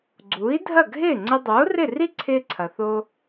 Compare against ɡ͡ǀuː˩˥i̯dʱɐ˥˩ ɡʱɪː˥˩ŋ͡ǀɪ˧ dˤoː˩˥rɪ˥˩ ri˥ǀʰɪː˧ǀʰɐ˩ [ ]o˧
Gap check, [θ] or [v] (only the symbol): θ